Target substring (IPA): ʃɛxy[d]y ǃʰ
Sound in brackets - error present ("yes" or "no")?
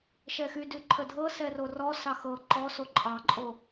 no